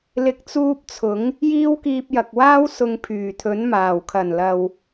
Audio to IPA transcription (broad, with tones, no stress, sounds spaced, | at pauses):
l ɪ˨˥ k̚ t͡s uː˧ p̚ t͡sʰ ʊ˨˥ ŋ | j iː˥ w k iː˧ p̚ j ɐ˨ k̚ w aː˥ w s ʊ˨ ŋ pʰ yː˨˩ t̪ʰ ɵ˨˥ n m aː˨˩ w kʰ ɐ˨˩ n l ɐ˨ w